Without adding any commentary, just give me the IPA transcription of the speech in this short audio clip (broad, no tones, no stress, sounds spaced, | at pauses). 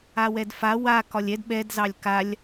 a w ɛ d f a w a k ɒ lʲ ɛ d ɓ ɛ d z ɑ lʲ k a lʲ